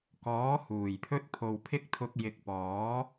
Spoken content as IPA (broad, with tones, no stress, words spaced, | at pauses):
kɔː˨˥ huː˨˩jpʰɵ˥t̚ pʰo˨wpʰɪ˥k̚t̪ʰʊ˧k̚ jɪ˨˥k̚pɔː˨˥